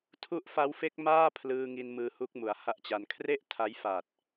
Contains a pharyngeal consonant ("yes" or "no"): no